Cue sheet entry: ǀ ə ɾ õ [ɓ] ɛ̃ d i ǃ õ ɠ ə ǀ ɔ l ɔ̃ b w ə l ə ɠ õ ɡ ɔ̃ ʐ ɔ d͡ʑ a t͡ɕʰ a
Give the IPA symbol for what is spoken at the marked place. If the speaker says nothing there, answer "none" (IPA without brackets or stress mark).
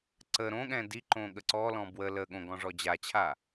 ɠ